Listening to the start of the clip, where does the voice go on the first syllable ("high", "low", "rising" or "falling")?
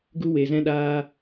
high